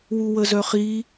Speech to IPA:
wuwəzœχi

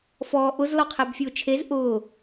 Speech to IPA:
fɔːʔʊz lɔqʰɛbfʲʊːt͡ʃʰez ʔʊː

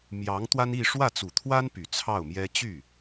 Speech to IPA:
mjɑ˧˥ŋt̪wa˥ni˥˧ ʂwä˥˩t͡su˨˩t̪ʰwa˥n py˨˩t͡sʰɑ˥˩ʊ̯mjɛ˥ t͡ɕy˥˩

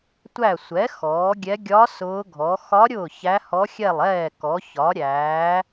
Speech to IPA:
tʷæ˥˩ sʷɛ˩˥ xɔː˩˥ɡʲɛ˧˥ ɡʲɒ˧˥ sʊː˧˥ɡʱɔ˩˥ xɒ˧˥ ɾʲʊː˥˩çæ˧˥hɔ˧˥ xʲɛ˥˩lˠɛː˥˩kɔ˩˥ çɒ˩˥ɾʲæː˩˥

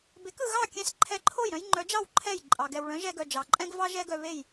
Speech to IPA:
be˩˥kɯ˩ɣɑ˥˩kʲɛ̃˧s ǃʰɛ˧ǃʰo˥˩jɾœ̃˥j ŋ͡ǃœ˩˥d͡ʒɑ˥˩w ǃʰɛ˥˩jǃʼɑ˩ ɡɛ˩wɭœ̃˩˥ʒɛ˧ɡœ˩ d͡ʒɑ˩ǃʼɛ̃˥ɡvɑ˥ ʒɛ˥ɡœ˧βe˥˩j

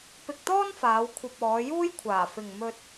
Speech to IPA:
pɪ˨k̚ t̪ɔː˥nfaː˨˧w kʷʰɐ˧p̚ɔː˨˧ juː˥jkʷʰaː˨˩ fɪ˨ŋ mɵ˧t̚

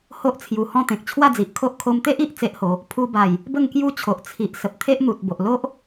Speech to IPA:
ho˦ʔt͡sʰju˨˩hɔ̃˥˧ t̪ẽ˨k̚t͡ɕʰwa˥˧d͡zi˨ʔkʰo˦ʔ kʰo˧mt̪e˦ʔi˨ʔ t͡se˦ʔho˨˦ | pʰu˧ba˨˩j | bə˥˧ŋkju˦t͡ɕʰo˨ʔ t͡sʰi˨ʔ sə˨p̚t̪ʰe˦ʔn̪u˨t̚ bo˨ʔlo˦ʔ

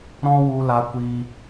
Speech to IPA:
ɾɔ̃˦ wu˧la˧ kʷi˧

